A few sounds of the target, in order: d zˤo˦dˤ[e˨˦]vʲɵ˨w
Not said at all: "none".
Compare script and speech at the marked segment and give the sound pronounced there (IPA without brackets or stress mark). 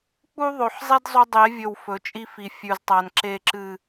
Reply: e˨˦